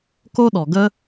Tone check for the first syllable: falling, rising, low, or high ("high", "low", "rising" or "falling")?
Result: high